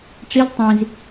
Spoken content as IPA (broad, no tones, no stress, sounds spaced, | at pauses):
ʈ͡ʂ i z tˤ ĩ z